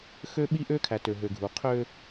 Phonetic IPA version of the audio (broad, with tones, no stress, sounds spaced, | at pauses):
x ø˦ ɓ i˦ ʔ ø˦ kʰ æ˨ t ø˨ ɦ ø˨ ɡʱ u˨ qʰ ø˦